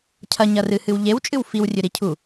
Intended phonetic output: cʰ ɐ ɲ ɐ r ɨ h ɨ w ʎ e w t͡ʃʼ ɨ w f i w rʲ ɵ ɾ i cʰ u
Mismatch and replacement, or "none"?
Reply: none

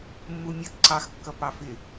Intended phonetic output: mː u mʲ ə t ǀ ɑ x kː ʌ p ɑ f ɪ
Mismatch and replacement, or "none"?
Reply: none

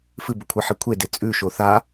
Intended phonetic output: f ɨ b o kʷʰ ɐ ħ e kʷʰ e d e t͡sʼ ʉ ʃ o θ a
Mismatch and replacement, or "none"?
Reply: none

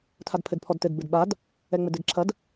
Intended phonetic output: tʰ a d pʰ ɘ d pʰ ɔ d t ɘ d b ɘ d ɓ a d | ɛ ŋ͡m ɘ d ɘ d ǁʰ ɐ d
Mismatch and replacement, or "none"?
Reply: none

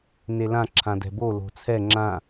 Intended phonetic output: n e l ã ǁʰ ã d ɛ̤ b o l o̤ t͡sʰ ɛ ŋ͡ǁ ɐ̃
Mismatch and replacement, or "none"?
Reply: ɐ̃ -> ã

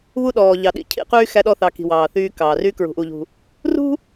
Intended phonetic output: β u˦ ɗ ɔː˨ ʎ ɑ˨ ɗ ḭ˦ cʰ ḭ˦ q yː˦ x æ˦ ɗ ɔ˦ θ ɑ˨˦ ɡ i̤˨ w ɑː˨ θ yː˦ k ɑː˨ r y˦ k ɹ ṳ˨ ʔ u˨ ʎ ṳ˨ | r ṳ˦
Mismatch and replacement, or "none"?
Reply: ɡ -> k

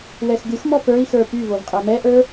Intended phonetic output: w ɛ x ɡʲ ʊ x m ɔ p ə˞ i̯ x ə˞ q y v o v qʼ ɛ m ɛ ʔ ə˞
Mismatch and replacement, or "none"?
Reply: q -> p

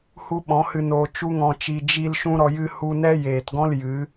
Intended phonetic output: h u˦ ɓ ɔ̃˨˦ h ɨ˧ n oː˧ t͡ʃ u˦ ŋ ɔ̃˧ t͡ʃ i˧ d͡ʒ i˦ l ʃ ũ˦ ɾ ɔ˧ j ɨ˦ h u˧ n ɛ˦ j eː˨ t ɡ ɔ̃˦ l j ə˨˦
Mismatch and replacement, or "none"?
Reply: ə˨˦ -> ɨ˨˦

